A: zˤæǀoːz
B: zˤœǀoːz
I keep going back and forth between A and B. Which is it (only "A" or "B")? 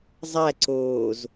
A